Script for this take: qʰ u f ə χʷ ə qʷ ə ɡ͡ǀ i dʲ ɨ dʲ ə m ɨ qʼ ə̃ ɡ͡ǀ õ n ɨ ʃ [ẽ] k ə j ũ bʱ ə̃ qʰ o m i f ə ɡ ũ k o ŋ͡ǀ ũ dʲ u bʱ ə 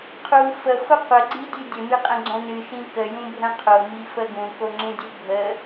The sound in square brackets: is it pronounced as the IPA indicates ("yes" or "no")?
no